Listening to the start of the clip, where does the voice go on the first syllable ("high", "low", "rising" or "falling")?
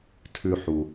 low